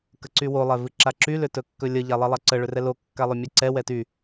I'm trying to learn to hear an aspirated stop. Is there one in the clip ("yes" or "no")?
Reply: no